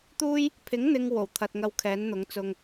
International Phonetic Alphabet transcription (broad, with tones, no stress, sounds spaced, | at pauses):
t̪ uː˥ j | pʰ ɪ˨˥ ŋ n̪ ɪ˨ ŋ w o˨˩ w t̪ʰ ɐ˨ t̚ ŋ ɐ˧ w kʰ ɛː˨˥ n n̪ ʊ˨˥ ŋ t͡s ʊ˧ ŋ